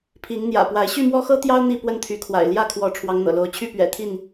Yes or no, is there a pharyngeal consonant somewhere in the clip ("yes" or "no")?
no